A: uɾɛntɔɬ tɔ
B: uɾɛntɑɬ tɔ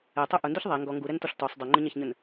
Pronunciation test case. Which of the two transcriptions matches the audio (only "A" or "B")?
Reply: A